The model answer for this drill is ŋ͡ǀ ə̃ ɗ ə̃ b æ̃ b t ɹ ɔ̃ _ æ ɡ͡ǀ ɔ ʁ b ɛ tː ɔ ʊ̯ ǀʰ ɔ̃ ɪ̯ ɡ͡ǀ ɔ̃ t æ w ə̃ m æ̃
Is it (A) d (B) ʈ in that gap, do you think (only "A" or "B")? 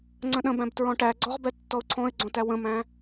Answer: B